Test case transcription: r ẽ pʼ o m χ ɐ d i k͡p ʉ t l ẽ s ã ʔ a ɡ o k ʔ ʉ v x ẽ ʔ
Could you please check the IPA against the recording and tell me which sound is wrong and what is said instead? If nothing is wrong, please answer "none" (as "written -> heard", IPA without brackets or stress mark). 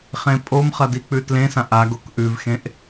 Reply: r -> χ